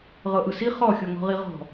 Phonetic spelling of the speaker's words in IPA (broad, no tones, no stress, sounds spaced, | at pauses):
ʁ ɤ ʔ ɯ s i χ ɔ xʲ o ŋ ɔ̤ ʁ i ʁ ɔ̤